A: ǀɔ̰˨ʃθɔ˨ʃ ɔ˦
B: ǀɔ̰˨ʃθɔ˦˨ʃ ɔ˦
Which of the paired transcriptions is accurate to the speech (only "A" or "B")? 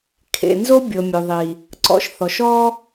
A